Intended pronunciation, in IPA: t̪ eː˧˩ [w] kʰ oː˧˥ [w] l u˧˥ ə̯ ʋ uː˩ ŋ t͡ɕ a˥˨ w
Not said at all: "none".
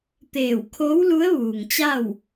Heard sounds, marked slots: w, w

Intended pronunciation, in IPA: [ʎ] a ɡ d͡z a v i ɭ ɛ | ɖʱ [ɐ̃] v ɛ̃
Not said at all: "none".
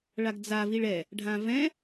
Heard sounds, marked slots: ɭ, ã

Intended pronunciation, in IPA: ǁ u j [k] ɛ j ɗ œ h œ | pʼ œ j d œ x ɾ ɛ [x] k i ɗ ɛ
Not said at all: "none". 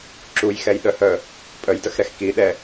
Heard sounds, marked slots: x, x

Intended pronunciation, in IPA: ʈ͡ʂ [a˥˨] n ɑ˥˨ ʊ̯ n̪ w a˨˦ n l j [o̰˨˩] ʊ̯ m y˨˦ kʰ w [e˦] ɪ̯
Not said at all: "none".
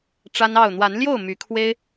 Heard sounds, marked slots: a˦, o˥˨, e˦

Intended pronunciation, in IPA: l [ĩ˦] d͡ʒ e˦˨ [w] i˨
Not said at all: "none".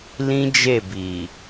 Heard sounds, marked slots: ĩ˦, b

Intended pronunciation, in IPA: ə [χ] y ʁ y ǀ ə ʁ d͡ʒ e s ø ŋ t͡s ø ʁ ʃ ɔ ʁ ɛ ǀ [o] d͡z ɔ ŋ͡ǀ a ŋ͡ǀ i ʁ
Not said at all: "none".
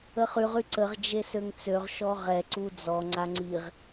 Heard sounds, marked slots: χ, u

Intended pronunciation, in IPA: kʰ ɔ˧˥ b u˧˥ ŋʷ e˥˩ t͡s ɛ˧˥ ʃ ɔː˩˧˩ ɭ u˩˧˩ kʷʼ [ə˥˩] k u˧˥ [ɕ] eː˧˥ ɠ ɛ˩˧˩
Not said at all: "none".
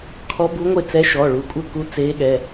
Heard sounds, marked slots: ə˥˩, t͡s

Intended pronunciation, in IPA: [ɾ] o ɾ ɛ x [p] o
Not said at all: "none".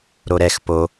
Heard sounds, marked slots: ɾ, p

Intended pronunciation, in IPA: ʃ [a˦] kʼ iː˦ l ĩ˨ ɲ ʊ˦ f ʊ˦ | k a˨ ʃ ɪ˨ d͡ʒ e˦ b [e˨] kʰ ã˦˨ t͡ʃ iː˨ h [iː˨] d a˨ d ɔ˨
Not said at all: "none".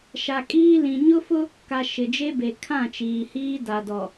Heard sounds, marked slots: a˨, e˨, iː˦

